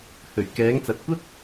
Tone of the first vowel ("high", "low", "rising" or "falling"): low